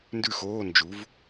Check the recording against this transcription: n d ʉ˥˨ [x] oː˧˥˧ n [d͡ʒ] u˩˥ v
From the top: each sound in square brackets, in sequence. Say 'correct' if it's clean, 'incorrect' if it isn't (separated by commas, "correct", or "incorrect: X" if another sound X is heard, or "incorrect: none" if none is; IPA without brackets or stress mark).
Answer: correct, correct